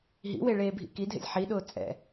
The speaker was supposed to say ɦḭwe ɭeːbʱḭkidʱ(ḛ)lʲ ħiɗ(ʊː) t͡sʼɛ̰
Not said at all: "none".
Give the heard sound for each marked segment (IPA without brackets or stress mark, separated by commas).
ḛ, ʊː